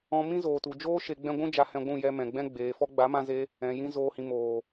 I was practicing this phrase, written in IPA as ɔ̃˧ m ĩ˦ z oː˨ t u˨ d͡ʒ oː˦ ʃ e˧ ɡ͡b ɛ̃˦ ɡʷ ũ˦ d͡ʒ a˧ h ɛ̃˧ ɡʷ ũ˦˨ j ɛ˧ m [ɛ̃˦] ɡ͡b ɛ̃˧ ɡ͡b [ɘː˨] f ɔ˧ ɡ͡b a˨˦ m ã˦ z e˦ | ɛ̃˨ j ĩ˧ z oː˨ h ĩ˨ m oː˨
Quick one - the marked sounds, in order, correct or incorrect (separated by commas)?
incorrect, incorrect